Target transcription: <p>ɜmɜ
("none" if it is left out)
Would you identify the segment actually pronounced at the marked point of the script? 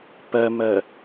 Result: p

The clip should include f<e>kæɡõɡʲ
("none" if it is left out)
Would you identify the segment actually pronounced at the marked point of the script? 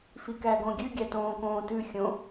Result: i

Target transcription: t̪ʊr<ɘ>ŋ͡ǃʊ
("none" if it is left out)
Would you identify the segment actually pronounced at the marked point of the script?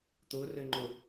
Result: ɘ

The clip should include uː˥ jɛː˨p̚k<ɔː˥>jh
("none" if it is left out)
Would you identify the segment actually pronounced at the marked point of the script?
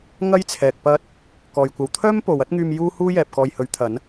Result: ɔː˨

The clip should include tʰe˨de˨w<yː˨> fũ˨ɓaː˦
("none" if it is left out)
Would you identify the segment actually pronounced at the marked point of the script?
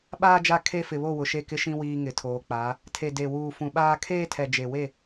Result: uː˨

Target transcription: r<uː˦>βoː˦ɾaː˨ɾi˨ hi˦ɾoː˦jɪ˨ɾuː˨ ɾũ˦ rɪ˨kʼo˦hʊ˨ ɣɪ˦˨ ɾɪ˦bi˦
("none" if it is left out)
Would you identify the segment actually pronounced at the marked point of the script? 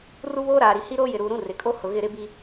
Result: u˦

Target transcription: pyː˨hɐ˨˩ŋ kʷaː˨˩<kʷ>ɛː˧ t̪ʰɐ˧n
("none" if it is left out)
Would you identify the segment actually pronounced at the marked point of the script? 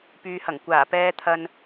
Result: p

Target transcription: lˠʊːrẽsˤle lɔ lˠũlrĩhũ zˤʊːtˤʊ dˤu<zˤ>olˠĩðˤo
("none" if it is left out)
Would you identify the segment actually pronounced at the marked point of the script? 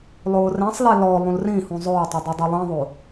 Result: dˤ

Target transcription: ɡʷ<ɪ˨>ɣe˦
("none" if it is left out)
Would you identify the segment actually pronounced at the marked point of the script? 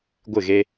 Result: ɪ˦˨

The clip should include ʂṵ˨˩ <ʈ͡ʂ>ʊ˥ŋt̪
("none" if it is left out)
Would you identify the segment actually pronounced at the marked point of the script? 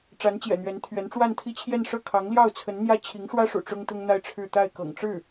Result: ʈ͡ʂ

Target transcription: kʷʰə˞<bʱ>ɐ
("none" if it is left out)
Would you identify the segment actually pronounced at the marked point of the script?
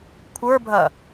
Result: bʱ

